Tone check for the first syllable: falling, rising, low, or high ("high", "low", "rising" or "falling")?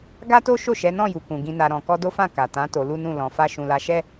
high